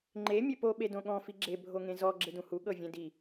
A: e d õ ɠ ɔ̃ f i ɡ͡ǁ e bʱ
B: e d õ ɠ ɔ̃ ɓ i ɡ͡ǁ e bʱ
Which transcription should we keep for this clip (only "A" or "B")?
A